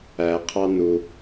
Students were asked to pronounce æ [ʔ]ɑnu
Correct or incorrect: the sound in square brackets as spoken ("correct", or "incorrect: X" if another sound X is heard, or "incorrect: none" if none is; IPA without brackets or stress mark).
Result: incorrect: qʰ